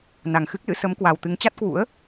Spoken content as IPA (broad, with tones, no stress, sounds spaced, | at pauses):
n a˨˩ ŋ x ɨ˦˥ k̚ l ɨ̰˧˥ s ə˨˦ m k w a˨˩ w t̪ ɨ˨˦ ŋ t͡ɕ a˦˥ t̚ k w ṵ˧˥ ə̯